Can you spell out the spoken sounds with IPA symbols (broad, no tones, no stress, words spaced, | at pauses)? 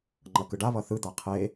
ŋ͡ǃʌkɯɖaβʌ θɯd̪a qʰe